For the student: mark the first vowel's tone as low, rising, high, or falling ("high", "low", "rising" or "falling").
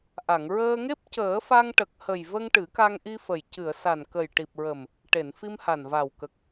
low